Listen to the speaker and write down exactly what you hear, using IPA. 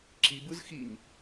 ǁ i b ɯ z x i ɲ

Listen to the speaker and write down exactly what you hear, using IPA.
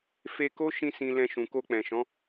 f e˧ k o˦ ʃ ĩ˧ s ĩ˧ l ɛ̃˧ ʃ ũ˨ k o˧ k͡p ɛ̃˨ ʃ ɔ̃˨˦

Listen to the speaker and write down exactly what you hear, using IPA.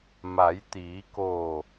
m a˩˧ j t̪ iː˩˧ k oː˧˩

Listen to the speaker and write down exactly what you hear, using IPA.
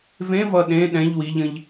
v ẽ v ʌ ɗ ẽ ɗ ɛ̃ ʎ w i ʎ ə̃ ʎ

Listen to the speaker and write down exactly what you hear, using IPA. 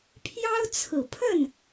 pʰ j ɑ˥ ʊ̯ t͡sʰ ɹ̩˨˩ pʰ ə˥˩ n

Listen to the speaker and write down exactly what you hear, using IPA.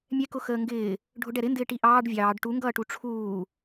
mʲ ɛ k ʊ x əː ŋ ɡ ɪː | ɖʱ ʊ ɖ ɛ ɾ ɪ n d ɪː ʈ i ʔ ɑː ɖ vʲ ɑː ɖ ʈ u ŋ ɡ ʌː ʈ u ʈ͡ʂʰ uː

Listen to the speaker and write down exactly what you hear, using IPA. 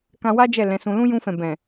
k ã˧ w a˦ d͡ʒ ɛ˦˨ l ɛ̃˨˦ s ũ˧ l ũ˦ j ũ˧ f ɛ̃˨ b ɛ̃˨

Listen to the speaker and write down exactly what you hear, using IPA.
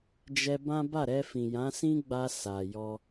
d͡ʒ ɛ˧ b ã˦ b a˦˨ ɾ ɛ˧ f ĩ˨ j ã˨˦ s ĩ˦ ɡ͡b a˧ s a˨ j ɔ˧

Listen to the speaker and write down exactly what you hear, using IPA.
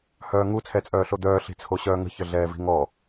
h œː ŋ u t͡sʰ ɛ t͡sʼ œː ɬ o d̪ œː ɬ i̤ t͡sʰ o ɕ œː ŋ ə̤ ç ə ɮ ɛː v i̤ ŋ ɔ

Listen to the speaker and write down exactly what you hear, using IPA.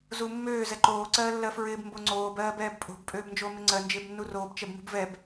z u mː øː z ɛ ǃ oː ǀ ɜː lː ɜ f ɹ ɪː b m b o ŋ͡ǀ oː b ɜː b ɛː b pʼ o̤ b pʼ øː b n d͡ʒ o m ɪ ŋ͡ǀ ɜ n d͡ʒ ɪː b nː u r oː b t͡ʃ ɛ b m ṳ b v ɛ b

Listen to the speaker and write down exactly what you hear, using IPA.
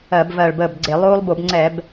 ɜ˧˩˧ b v ɜ˧˩ ɭ b əː˧˩ b ɡ͡ǀ e˧˩˧ lˠ oː˦ lˠ b o˧˩˧ b ŋ͡ǀ ɛ˧˩˧ b

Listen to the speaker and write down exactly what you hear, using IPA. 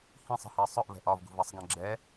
h ĩ sˤ ə̤ h ɜ sˤ ʊ ʔ v ɛ̤ ʔ ɒ v ɡ ṳ v ʌ sˤ ɡ ɛ̃ ɡ͡ǁ ɛ

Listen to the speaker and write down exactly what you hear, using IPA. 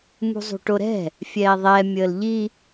m ṳ zˤ ṳ ʈ o ɾ ɛ̤ | fʲ ɛː ðˤ ɛ mʲ əː l ʎ i

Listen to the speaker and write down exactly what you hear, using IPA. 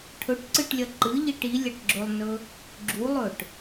ʈʰ ɵ ʈ ǀ ɨ ʈ lʲ ɐ ǃ ɨ ʎ i ʈ i lʲ ɐ ʈ ɡ͡ǁ ɵ lˠ n ɵ | ɡ͡ǁ u lˠ ɵ ʈ

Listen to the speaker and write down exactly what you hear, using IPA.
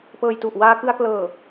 p ɤː˧ j t u˨˩ ʔ w aː˧ k ɯ˧ a̯ k l ɤː˨˩

